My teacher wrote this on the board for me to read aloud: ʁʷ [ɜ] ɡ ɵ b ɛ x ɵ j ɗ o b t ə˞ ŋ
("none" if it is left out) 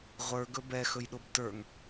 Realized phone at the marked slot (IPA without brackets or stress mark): ə˞